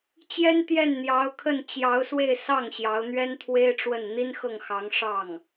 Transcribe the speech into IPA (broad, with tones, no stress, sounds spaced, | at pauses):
t͡ɕ j ɛ˥ n t̪ j ɛ˥˩ n n̪ j ɑ˧˥ ʊ̯ kʰ ə˥˩ n t͡ɕ j ɑ˧˥ ʊ̯ s w e˥˧ ɪ̯ s ɑ˥˩ ŋ ɕ j ɑ˧˥ ʊ̯ n̪ ɥ ɛ˥ n t̪ʰ w e˥ ɪ̯ ʈ͡ʂ w ə˥˩ n n̪ i˥ n x ɤ˥˩ ŋ x ɑ˧˥ ŋ ʂ ɑ˥˩ ŋ